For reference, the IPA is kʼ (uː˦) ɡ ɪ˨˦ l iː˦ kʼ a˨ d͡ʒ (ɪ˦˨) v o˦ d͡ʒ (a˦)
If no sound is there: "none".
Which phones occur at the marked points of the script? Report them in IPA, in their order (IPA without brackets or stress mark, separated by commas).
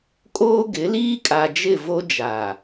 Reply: oː˦, ɪ˦˨, a˨